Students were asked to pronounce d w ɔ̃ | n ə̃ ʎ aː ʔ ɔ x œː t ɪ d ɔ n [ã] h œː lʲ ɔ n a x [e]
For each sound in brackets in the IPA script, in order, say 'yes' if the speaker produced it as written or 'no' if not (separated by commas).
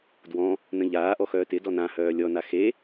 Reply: yes, yes